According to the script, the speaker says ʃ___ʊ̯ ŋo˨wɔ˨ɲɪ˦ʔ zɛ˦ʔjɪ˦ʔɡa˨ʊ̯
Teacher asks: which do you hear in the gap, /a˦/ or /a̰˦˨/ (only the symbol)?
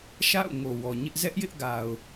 a̰˦˨